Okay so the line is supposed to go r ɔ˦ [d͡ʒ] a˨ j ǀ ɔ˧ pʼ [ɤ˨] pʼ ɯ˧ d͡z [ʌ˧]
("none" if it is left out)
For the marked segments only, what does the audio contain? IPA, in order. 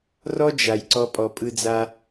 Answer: d͡ʒ, ɔ˨, a˧

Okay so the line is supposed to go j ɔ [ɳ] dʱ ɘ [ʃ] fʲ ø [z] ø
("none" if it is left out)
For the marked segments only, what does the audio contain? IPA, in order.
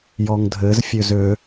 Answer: ŋ, z, z

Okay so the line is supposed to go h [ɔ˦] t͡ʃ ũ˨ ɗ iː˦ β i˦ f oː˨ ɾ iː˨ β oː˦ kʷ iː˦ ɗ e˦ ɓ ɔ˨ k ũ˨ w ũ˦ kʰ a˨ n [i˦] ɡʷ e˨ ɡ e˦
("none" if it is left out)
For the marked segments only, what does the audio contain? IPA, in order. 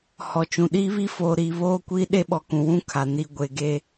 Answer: ɔ˨, i˨

